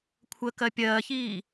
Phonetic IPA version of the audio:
kʷʰəkɜ pʲɜːçiː

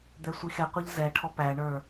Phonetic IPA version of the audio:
d̪ɛsʷixɛqʷʌʎ zɛʈʰɔ pæɳə˞

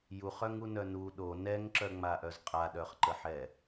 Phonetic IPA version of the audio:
juχœŋunœ nu ɗo nɛŋǁœŋ͡maʔœz qʼaɗœχǃəħɛ

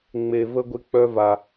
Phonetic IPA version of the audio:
ŋ͡me˧və˦ ɡʷɪ˦ k͡pœ˦va˧

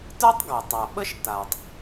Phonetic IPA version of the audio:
tə˞˥tˤɡa˩tˤa˩ ɓə˥ʃta˩tˤ

